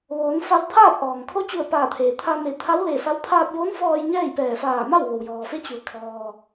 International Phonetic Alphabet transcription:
ʋoː˩˧nfa˧wpʰaː˥˨t̚ ʔɔː˩ŋ kʰo˧˥t͡ɕu˧˩ə̯ paː˧˩t̪ʰeː˩t̪ʰa˧ me˧˩t̪ʰa˧˥wle˧˩sa˧˥w pʰaː˧p̚joː˧˥nfɔː˧j ɲɛː˥˨jpɛː˧˩ faː˧˩ma˥˨w ʋo˩wjɔː˩ fe˧˥t͡ɕu˩˧ə̯ kʰɔː˩

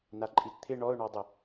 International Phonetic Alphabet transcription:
naǃʼitt̪ʰɪ ɳɔʊ̯ɳɔdˤɪ

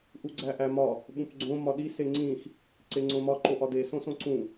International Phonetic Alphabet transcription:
ʔuɡ͡ǀæʔæmɒ | ɓũpɡ͡ǀõ mɒɗi seŋ͡ǀĩx | ǀeŋ͡ǀõmɒ ǃoʔɒde sõsõǀũ

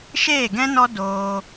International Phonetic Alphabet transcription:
ʃeː˦˨ɡɛ̃˦nɔ˦ doː˧

